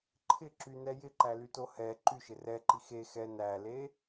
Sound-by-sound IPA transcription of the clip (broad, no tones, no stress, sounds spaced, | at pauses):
ǃʰ ɪ ǁ y n ɛ j ɪ ǃ æ l y t o h ɛ ǃ y ʃ ɪ r ɛ ǃ i x e x ɛ n æ l e